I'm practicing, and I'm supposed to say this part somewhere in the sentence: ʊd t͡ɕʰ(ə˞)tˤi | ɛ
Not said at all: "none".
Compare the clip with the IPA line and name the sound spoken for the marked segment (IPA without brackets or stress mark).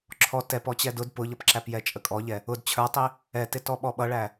ə˞